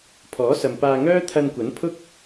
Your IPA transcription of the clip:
pʰɔː˨˥sɐ˨mpaː˧ŋœː˥ t̪ʰɐ˧nkʷɐ˨˥n pʰʊ˥k̚

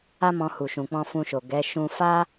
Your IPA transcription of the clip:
a˦mɔ̃˧ hu˨ʃũ˨k͡pɔ̃˧ fũ˧ʃo˨ ɡɛ˨˦ ʃũ˧fa˦

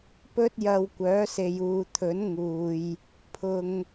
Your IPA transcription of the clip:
pɵ˥t̚jɐ˧w kʷœː˨˥se˨juː˨t̪ʰɵ˨˥n ŋuː˨j | pʰʊ˨ŋ

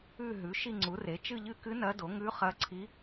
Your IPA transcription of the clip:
ʉ˦˨ ɦʉ˩˥ ʃi˦˨ŋ͡ǀu˩˥re˩˥ t͡ʃɨ˦˨ʎɨ˦˨kɨ˧˥ nɐ˧˥do˩˥ ŋʉ˧˥ χɐ˧˥ǀʰi˧˥

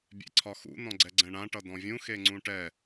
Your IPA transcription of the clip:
bʲḛǀʰɒxṵ nɔ̃ɡ͡ǀɛɡ͡ǀɛ̃ɳã ʈʌdɔ̃vʲũ xeŋ͡ǀũʈɛ

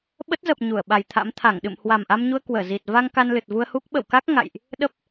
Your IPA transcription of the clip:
ɓə˦˥t̚zə˨˩p̚ ɲu˧˩ə̯ɓa˨˩jt̪ʰa̰˧˥m t̪ʰa˧˩ŋɗɨ̰˧˨m hwa˨˩mʔa˧mɲu˧ə̯ kwəː˧˩zi˨˩t̚ va˧ŋ ka˧nlɨ˨˩t̚vu˧ə̯hu˦˥k̚ ɓə̰˧˨wka˦˥k̚ ŋa̰˧˨jʔ | ɗə˦˥p̚

